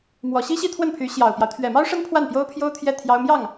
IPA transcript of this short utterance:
mwɔ˨˩ɕi˥ɕi˥˧ t̪ʰwə˥˩npʰy˧˥ ɕjɑ˨˩ʊ̯pjɑ˦ʊ̯ t̪ʰɥɛ˨˩mɑ˥ʊ̯ʂə˥n pʰwa˥˩npjo˥ʊ̯pʰjo˥ʊ̯ t̪ʰjɛ˥˩t̪ʰjɑ˥ʊ̯ mjɑ˥˩ŋ

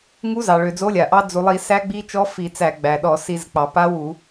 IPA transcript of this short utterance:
ŋu˧˥zɑ˩ɭø˩ d͡zo˧˥lʲa˩ʔɑ˧˥ d͡zu˩lˠi˧˩˧ sæ˧˥ɡ͡bi˧˥t͡ʃɔ˧˥ fi˧˩˧t͡sæ˧˩˧ɡ͡bæ˩ɗɔ˧˩˧ si˧˩˧zk͡pɑ˩ pa˧˥wu˧˩˧

